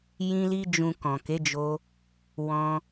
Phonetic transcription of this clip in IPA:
jĩ˧li˧ d͡ʒũ˨ kɔ̃˨ke˨˦d͡ʒo˧ | wɔ̃˧

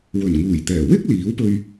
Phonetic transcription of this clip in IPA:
wɵ˨˩nŋuː˨˩j t̪ɛː˨˩ wɪ˥k̚ liː˨˥wpɵ˧ɥ

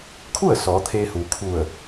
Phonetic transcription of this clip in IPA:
kʰu˥˨ə̯ sɔː˩˧t̪ʰeː˧huː˩kʰu˧˩ə̯

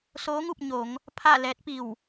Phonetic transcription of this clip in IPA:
soː˧˥ŋu˥˨p̚ ɲo˩˧ŋ | pʰa˥˨ lɛː˧˥t̚pi˧˩w

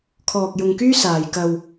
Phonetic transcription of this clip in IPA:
kʰɔː˧k̚jʊ˧ŋkyː˥ saː˨jkɐ˧w

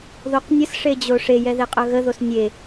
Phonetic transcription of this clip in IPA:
ðoqnʲəsʂed͡ʑo ʂejɛ ðeqʼœɣəðos nʲe

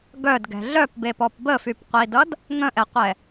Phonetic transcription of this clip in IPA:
ɡœdɡɛ̤ ɮœpbepɔp bəfypqʷidʌd | ŋə̃ʔɛqʷɛ

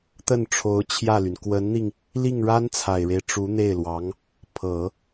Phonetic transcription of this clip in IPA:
t̪ə˥˩nʈ͡ʂʰo˧˥ʊ̯t͡ɕʰjä˥˩ly˩n kwə˧˥nn̪i˧ŋ | li˥˩ŋɻa˥nt͡sʰa˨˩ɪ̯ɻe˦ɪ̯ ʈ͡ʂu˧˥n̪e˥˩ɪ̯lwɑ˧˥ŋ | pʰɤ˨˩˦

